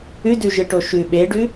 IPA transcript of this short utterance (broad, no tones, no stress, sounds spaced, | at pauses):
ʉ d ʉ ʒ ɨ ʈ o ʃ ʉ ɓ e ɖ ʉ